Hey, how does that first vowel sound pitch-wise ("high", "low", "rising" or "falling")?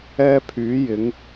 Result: high